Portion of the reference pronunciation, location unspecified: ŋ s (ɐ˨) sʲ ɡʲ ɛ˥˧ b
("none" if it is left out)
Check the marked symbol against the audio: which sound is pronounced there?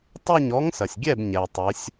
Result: ɐ˨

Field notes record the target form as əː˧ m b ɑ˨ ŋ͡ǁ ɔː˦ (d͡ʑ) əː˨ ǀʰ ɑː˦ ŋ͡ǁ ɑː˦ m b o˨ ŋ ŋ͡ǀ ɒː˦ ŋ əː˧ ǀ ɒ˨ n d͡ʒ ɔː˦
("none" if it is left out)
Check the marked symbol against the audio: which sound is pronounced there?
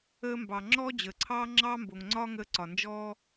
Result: d͡ʑ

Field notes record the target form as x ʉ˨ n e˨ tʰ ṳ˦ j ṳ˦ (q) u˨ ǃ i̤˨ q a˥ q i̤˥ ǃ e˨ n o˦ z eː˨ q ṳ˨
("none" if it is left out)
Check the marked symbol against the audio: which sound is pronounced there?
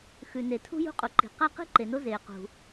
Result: qʼ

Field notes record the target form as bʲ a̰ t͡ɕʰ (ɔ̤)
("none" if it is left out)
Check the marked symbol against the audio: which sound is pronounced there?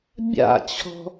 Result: ɔ̤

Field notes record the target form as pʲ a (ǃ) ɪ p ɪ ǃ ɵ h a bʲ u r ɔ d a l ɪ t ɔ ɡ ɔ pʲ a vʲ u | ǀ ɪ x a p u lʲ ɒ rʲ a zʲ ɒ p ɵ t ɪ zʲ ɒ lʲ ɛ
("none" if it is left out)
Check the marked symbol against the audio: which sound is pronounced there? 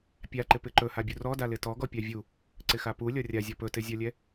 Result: ǃ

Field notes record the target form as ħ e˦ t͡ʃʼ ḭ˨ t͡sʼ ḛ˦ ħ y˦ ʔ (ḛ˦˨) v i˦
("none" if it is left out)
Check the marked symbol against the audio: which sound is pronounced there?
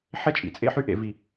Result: ḛ˨˦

